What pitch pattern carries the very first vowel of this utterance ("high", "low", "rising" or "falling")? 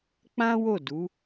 high